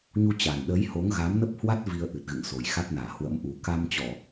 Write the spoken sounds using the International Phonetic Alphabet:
ɲ u˧ t͡ɕ a˨˩ n ɗ əː˨˦ j h o˨˦ ŋ ɣ a˨˦ m n ə˦˥ p̚ h w a˦˥ t̚ v i˧ ə̯ ʔ ɨ˨˩ t̚ ɣ ɨ̰˧˨ ŋ s o˨˩ j x a˦˥ t̚ n aː˧˩ h w ə̰˧˥ m ʔ u˨˩ k a˧ m t͡ɕ ɔ˧˩˨

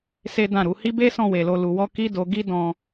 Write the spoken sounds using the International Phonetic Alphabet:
s e˦ d ã˦˨ ɾ u˨˦ h i˦ b e˦ s ɔ̃˦˨ w e˧ l o˧ l u˧ w ɔ˦ k i˦ d o˧ ɡ i˦ d ɔ̃˧

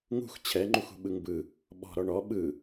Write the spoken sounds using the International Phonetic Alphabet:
ŋ ṳ x t͡ɕʰ ɛ ŋ͡ǃ u x ṳ ɓ ɯ ŋ b ɯ | ɓ ɔ̤ ɾ ɔ ɳ ɔ ɓ ɯ

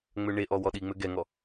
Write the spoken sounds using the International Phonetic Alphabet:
ŋ͡m ø ɳ e ʔ ɔ w ɔ ɗ i ŋ͡m ø ɡ ɛ ŋ ɔ

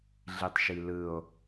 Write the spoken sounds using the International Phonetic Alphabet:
ɮ i tˤ ʃ i l ɯ o̯

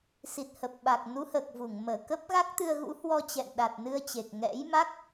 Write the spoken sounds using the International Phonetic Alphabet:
s i˨˩ t̚ h ə˨˩ p̚ ɓ a˨˩ k̚ n u˨˦ h əː˨˩ k̚ v u˧˩ ŋ m əː˧˩ k ə˦˥ p̚ ɣ a˦˥ k̚ t̪ ɨ˧ ə̯ ɣ ṵ˧˥ h w ɔ˧ t͡ɕ ɛ̰˧˨ n ɗ a˨˩ t̚ n ɨ˧ ə̯ t͡ɕ e˨˩ k̚ ŋ ɛ̰˧˥ j m a˦˥ k̚

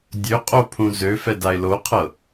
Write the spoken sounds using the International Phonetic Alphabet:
dʲ ø qʼ o pʰ ũ z ø f ɛ d a ɪ̯ l o qʰ ɤ

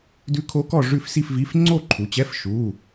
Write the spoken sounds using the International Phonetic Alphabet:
d ʉ˦˥ kʰ o˦˥ k ɔ˥˧ ʐ ʉ˥˧ f s i˥˧ f v i˧˥˧ f ŋ͡ǀ o˥˧ ǃʰ u˨˦ t͡ɕ ɛ˧˥˧ f ʃ u˧˥˧

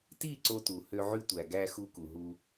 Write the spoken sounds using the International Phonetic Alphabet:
t i˦˨ ǀ o˦ t u˨ h ø˦ ʕ y˦ tʷ æ˨ ɡ æ˦ x u˦ k u˨ ɦ u˦

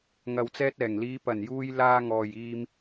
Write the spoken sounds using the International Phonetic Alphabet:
ŋ ɐ˨ w t͡s ɛː˧ t̚ ɛː˨˩ ŋ l iː˨˧ p ɐ˨˩ n j uː˧ j l aː˧ ŋ ɔː˨ j iː˧ m

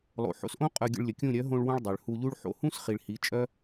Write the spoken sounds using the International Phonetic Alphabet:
lˠ o̰˨ ħ o̰˧ s ʔ õ˦ qʼ œ˧ ɡʲ ə̰˧ ɭ lʲ ə˨ kʲ ũ˦˨ ɾʲ œ˨˦ ɦ õ˧ ɭ w ũ˧ ɭ dˤ ø˨ ɭ h u˧ ʎ u˦ ɭ ħ o̰˧ h ũ˦ s χ i˨ ɭ h i˨˦ t͡ʃʼ œ˦

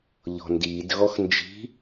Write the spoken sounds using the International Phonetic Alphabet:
ʎ ɔ̤ n d iː d ɣ ɔ x n d͡ʒ i̤

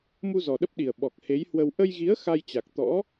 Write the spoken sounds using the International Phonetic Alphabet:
m u˧ z ɔ˨˩ ɗ ə˦˥ p̚ ɗ i˨˩ ə̯ ɓ ɔ˨˩ k̚ h e˨˦ j h w ə˧ w ʔ ə˧ j ɣ i˨˦ ə̯ x a˧ j t͡ɕ a˨˩ k̚ t̪ ɔ̰˧˥

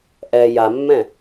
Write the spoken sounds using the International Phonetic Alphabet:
ʔ ɛ j a mː ɛ̃

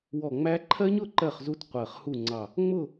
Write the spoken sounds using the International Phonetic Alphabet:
w ɔ˧˩ ŋ͡m æ˦˥ ǃʰ ɜ˦˥ ɲ ʊ˥˨ ǃ ɜ˥˨ χ z u˦˥ t qʷ ɜ˧˩ χ h u˥˨ ŋ͡ǀ ɑ˧˩ | ŋ͡m ʊ˥˨

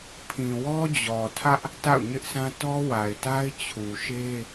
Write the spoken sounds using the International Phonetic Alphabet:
pʰ ĩ˨ w ɔ˦ d͡ʑ ɔ˨ tʰ ä˦ ʔ | t a̰˦˨ ʊ̯ ɲ ɪ˦ ʔ sʰ ã˦ t ɔ˦ w a˨ ɪ̯ t a˦ ɪ̯ t͡ɕʰ u˨ ʃ e˦

